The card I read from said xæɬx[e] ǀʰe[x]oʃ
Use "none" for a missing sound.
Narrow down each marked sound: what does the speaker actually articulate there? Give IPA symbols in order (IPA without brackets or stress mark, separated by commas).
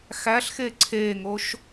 e, ŋ